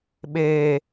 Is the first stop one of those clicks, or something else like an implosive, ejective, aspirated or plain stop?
implosive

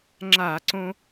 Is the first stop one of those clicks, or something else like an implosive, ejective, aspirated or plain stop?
click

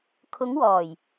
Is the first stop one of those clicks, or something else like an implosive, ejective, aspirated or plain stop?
aspirated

